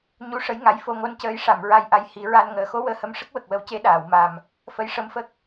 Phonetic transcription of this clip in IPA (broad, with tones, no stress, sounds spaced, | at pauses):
ɲ u˧˥ ʂ ə˧˥ j ŋ a˧˥ j f o˧ ŋ o˧˥ n c əː˧ j ʂ a˨˩˨ m ɹ a˧ j ʔ a˧ j h i˨˩˦ ɹ a˧ n ŋ əː˨˩˨ x o˧˥ w əː˧ h ə˧˥ m ʂ ə˦˥ k̚ w ə˨˩ k̚ w ə˧˥ w c e˧˥ ɗ aː˨˩˨ w m a˨˩ m | f ə˧˥ j ʂ ə˧˥ m f ə˦˥ k̚